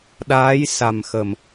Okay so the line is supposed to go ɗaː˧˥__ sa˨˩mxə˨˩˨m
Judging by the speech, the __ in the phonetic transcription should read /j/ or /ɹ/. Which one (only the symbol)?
j